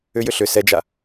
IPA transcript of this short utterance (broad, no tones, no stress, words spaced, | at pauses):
ʏjʏ ɬʏ sɛd͡ʒa